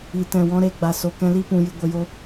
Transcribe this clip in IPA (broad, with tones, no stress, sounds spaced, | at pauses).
i˨ t ɛ̃˨ w ɔ̃˧ ɾ e˧ ɡ͡b a˨ s o˨ k ɛ̃˧ l i˦ p ũ˧ j ɨ˧ ɡʷ ə˧ j o˦